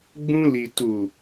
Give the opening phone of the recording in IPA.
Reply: ɡ͡b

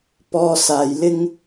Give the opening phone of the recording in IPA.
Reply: p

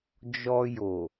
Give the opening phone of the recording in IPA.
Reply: d͡ʒ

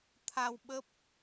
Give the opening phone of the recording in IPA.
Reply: t̪ʰ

